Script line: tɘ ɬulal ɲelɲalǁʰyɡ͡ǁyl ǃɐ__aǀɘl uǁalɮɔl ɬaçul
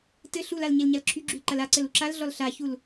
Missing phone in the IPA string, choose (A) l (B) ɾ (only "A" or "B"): A